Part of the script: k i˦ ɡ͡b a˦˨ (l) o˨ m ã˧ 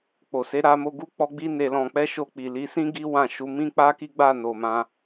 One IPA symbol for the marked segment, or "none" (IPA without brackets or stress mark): n